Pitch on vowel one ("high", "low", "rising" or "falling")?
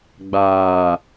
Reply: low